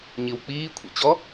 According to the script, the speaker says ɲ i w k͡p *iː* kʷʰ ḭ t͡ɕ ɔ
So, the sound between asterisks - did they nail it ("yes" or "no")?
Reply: yes